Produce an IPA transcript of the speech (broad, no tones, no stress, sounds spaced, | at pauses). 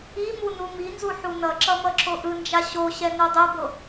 i m u n u m i n z u ħ u n ʌ ǁ ʌ m ʌ ǁ o ʔ ɯ n d͡ʒ a ɕ o ɕ ɛ n o dˤ ɛ b o